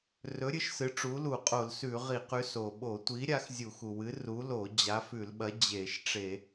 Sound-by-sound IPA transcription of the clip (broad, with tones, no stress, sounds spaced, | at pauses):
r ɵ˨˥ ɾʲ ɨ˨˥ ʃ s ɨ˨˥ ʈ͡ʂ u˨˥ l u˧˩˧ qʼ o˧˩˧ l s ʉ˧˩˧ ʁ i˧˩˧ q ʉ˨˥ s o˩ ɓ o˧˩˧ tʷ i˨˥ ɾʲ a˨˥ x zʲ u˧˩˧ x u˩ w ɨ˨˥ r u˨˥ l o˧˩˧ d͡ʑ a˨˥ f ʉ˧˩˧ l ɓ ɐ˨˥ d͡ʑ e˧˩˧ ʃ ʈ͡ʂ e˧˩˧